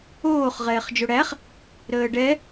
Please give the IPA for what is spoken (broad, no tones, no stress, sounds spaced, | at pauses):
oː χ ʁ ɛː χ d͡ʒ o ɽ æ χ | ɾ əː ɖ ɛ